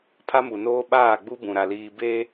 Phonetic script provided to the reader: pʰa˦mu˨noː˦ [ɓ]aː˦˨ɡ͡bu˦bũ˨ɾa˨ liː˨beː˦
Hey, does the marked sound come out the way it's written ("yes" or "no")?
yes